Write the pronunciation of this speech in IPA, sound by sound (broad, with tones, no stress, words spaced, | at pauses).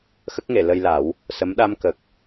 xə˦˥k̚ŋe˨˩˨ lə˧jla˨˩˦w | sə˧˥m ɗa˧mkə˨˩k̚